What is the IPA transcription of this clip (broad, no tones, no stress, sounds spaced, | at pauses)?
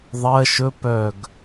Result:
ðˤ ɜ ʃ ɵ p œ ɡ